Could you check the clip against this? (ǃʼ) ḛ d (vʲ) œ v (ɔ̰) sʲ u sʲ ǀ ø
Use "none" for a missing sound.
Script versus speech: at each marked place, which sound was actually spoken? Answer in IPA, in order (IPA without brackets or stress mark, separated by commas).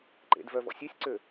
ǃ, v, ɔ̰